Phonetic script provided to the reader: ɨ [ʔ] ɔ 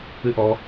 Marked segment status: correct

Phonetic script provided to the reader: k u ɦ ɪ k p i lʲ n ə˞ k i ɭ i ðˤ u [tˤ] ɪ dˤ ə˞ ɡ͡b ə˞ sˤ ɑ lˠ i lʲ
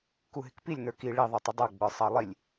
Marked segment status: correct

